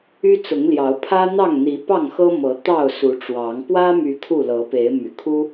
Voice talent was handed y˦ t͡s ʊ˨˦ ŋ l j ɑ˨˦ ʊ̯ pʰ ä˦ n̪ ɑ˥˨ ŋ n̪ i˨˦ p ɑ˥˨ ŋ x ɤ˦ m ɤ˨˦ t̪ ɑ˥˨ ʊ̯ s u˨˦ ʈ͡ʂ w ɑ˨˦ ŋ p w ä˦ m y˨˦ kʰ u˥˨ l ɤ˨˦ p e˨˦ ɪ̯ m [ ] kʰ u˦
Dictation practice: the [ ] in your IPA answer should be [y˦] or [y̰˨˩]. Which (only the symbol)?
y̰˨˩